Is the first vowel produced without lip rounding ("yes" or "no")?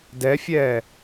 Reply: yes